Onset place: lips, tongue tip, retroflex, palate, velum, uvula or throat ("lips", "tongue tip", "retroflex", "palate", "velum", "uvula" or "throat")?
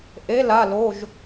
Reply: throat